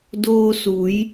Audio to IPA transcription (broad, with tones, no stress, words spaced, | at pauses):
doː˧su˩˧j